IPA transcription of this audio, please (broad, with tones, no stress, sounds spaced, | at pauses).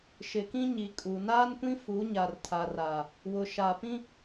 ʃ ɪ˨ k ĩ˦ ɲ i˨ kʼ u˨ n aː˦ n kʷ ĩ˦ f u˨˦ ɲ a˨ r tʰ a˨ r aː˨ | w ʊ˨ ʃ a˨ p ĩ˦